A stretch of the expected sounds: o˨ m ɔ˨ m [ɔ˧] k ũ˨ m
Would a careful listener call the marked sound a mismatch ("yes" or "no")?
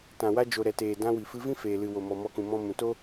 no